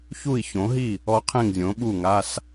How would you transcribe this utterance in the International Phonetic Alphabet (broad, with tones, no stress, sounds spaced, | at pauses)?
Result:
ç u˥˩ i̯ ç õ˩˥ ɦ i˥˩ | ɔ˧˥ qʰ ẽ˥˩ ŋ zʲ õ˩˥ ɓ u˥˩ ŋ a˧˥˧ s